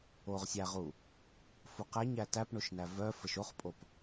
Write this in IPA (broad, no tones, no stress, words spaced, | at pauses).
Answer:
oʁsʲæʁu | fuqæɲæ tæpɳoʃnæ vœ fəʃoχpʼop